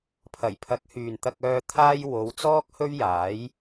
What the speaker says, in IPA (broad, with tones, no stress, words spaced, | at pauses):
pʰɐ˨˩jpʰɐ˨˥k̚hyː˨n t̪ɐ˧k̚œː˧ t̪ʰaː˥j wo˨˧wt͡sɔː˥k̚hɵ˥ɥ jaː˨˥j